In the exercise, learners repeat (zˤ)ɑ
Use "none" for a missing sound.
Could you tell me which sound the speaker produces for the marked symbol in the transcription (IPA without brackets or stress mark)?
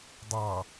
dˤ